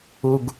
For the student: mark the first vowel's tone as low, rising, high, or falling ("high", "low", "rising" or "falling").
low